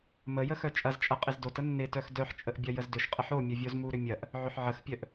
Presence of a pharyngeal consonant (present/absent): present